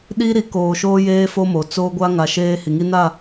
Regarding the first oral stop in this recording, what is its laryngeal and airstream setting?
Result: implosive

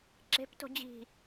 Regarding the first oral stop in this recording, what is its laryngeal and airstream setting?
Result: click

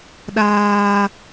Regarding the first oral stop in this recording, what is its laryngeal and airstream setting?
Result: implosive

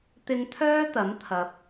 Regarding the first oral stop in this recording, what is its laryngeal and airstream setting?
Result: plain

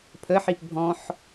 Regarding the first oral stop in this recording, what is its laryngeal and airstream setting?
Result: aspirated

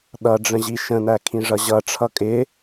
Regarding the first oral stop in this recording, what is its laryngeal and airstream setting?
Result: implosive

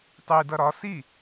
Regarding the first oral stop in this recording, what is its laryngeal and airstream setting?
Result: plain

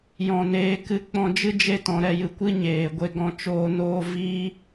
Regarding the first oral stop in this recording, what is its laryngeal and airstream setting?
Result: plain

